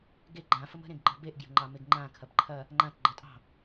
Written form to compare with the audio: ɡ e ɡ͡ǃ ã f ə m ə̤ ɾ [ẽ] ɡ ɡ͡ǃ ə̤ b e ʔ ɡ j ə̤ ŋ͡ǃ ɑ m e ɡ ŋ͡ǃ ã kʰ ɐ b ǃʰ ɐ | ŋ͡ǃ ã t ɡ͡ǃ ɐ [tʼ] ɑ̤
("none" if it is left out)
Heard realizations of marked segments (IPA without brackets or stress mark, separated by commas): ẽ, tʼ